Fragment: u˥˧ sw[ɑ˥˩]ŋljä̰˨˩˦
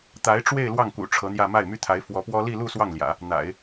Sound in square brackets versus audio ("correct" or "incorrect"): correct